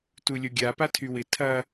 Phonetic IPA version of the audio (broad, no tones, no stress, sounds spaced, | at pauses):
t u lʲ o ɡʲ a p a tʰ y w ɪ tʰ ɐ